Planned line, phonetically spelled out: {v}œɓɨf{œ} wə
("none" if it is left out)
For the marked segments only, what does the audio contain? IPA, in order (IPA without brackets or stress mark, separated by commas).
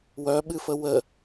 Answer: w, ə